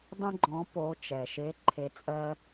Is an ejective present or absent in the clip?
present